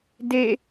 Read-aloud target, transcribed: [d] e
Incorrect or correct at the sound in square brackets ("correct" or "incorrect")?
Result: correct